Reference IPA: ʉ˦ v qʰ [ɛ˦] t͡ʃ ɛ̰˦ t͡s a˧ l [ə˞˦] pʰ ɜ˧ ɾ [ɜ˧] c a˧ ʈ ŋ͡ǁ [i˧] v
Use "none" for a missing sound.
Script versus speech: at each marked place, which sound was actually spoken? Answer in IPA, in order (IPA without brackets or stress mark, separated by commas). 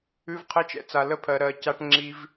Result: ɛ˦, ə˦, ɜ˧, i˧